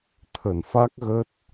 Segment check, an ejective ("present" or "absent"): absent